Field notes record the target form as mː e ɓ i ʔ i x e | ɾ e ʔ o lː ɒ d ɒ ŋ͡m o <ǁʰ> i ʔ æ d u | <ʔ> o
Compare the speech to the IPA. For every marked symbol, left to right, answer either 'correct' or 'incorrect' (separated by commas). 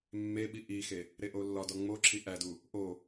correct, correct